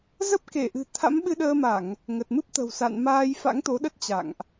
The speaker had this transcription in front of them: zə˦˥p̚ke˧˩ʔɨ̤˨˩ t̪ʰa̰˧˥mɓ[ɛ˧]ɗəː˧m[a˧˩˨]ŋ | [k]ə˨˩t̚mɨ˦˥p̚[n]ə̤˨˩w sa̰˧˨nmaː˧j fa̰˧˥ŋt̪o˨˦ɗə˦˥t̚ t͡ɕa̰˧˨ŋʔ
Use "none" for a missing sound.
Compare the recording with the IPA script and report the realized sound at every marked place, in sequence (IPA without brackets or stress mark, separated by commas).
ɨ˧, a˧˩˨, ŋ, t̪